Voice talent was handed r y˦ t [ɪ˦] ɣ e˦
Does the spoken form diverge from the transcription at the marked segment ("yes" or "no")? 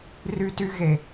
yes